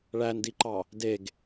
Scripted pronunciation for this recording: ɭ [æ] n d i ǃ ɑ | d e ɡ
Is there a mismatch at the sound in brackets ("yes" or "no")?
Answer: no